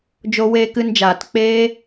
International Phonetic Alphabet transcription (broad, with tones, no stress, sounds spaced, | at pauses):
d͡ʒ o˧ w eː˧ k ɨ˧ n d͡ʒ aː˨ t k͡p eː˦